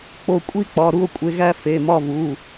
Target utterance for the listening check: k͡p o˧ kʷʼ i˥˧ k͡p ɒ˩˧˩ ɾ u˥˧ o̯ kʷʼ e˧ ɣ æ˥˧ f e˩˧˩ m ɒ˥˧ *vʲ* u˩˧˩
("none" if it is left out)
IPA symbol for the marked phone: v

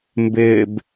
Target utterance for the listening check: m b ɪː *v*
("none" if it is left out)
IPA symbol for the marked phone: b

